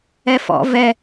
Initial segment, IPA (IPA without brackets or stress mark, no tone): ɛ